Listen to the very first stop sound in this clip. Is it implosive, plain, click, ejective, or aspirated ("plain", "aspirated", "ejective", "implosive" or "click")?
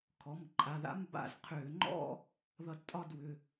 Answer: aspirated